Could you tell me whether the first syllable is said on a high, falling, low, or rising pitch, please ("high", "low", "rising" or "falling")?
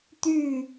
falling